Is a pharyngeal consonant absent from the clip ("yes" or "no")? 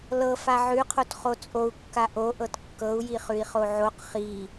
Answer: no